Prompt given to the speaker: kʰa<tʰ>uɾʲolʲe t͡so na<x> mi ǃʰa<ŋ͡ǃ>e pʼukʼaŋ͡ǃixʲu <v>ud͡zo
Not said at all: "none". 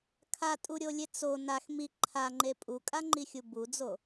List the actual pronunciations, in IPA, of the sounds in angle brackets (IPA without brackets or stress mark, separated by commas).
tʼ, x, ŋ͡ǃ, b